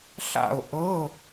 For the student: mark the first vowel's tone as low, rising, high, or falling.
falling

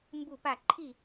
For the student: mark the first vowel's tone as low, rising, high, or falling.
falling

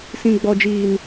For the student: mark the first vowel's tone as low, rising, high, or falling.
high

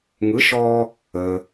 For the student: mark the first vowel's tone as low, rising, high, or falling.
rising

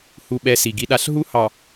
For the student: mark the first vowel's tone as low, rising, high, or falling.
falling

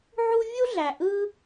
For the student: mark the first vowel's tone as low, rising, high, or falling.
high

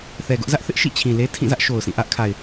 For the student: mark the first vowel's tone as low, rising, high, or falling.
low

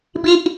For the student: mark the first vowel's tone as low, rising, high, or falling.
falling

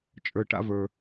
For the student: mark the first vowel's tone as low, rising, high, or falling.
low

